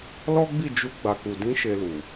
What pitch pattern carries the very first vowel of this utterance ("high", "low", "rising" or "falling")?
high